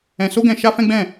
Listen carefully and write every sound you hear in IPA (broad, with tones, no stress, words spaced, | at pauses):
ɛ̃˧ so˦ɡɛ̃˧ ʃa˦fɛ̃˦ɡ͡bɛ̃˦˨